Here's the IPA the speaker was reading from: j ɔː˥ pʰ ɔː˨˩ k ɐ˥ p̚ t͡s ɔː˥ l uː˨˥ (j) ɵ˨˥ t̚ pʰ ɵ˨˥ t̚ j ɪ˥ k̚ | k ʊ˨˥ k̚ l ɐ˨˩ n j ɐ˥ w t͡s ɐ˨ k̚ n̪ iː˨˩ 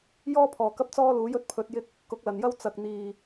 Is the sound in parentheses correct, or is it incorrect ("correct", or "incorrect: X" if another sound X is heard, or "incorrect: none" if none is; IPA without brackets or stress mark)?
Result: correct